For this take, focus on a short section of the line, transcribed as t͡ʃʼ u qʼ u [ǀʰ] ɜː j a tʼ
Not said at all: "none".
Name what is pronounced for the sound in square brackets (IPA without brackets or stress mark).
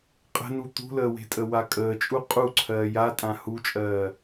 ǀʰ